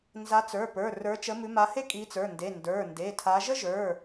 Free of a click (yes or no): yes